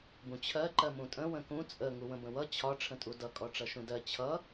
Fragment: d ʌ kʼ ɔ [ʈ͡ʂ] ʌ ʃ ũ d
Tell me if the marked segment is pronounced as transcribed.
yes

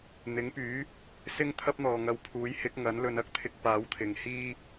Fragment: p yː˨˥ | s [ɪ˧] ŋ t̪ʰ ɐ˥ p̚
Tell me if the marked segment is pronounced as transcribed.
no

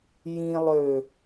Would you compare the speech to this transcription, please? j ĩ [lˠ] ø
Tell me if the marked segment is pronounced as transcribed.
yes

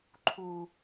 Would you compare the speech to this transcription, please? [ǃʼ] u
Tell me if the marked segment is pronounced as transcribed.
no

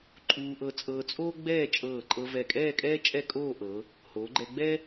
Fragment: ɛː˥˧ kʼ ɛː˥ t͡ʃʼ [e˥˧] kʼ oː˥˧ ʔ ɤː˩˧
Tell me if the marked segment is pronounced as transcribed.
no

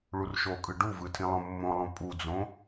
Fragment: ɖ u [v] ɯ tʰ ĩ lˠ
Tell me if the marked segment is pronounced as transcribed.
yes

